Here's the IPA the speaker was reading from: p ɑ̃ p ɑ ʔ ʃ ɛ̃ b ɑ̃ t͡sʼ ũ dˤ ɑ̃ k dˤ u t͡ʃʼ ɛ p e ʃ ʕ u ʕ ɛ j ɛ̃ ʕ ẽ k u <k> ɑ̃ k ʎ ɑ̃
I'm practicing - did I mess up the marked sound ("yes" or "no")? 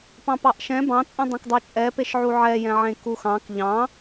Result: yes